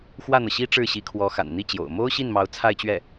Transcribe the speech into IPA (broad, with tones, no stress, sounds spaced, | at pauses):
x w ä˥˩ n̪ ɤ˩ ɕ i˥ ʈ͡ʂ ɻ̩˥˩ ɕ i˧˥ kʰ w ɔ˧˥ x a̰˨˩ n n̪ i˥˩ t͡ɕ j o̰˨˩ ʊ̯ m o˥ ʊ̯ ɕ i˥˩ n m ɑ˧˥ ʊ̯ t͡sʰ a˥˧ ɪ̯ t͡ɕ ɥ ɛ˥˩